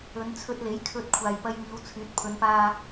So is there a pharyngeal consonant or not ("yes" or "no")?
no